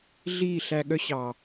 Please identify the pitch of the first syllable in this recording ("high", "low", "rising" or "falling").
falling